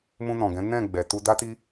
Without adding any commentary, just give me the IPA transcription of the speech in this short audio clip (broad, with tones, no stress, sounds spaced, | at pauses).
m ũ˧ n ɔ̃˨ ɡ ɛ̃˨˦ n ɛ̃˦˨ ɡ͡b ɛ˨ t u˧ d a˦ t i˦